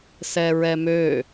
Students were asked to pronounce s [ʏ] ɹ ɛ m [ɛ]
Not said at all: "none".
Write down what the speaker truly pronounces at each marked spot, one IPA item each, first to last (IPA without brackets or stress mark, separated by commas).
ɛ, ø